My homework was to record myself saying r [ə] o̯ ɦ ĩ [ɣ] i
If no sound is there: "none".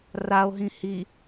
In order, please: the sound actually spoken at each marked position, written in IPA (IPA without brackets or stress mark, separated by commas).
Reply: a, h